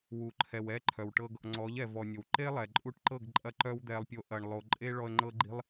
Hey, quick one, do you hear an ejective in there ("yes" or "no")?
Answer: yes